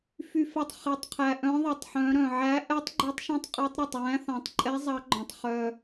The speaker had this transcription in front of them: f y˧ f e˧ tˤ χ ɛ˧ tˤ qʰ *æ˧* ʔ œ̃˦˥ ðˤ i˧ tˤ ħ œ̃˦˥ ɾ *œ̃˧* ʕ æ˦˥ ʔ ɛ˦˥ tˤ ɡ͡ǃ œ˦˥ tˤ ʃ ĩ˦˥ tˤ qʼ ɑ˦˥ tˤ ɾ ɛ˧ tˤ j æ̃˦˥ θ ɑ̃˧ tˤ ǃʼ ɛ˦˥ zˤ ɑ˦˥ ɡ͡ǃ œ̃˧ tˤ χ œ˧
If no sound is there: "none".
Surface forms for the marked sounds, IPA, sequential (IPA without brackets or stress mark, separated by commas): æ˧, œ̃˧